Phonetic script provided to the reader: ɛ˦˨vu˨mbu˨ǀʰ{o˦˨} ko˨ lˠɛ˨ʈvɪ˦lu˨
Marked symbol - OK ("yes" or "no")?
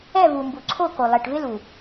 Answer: yes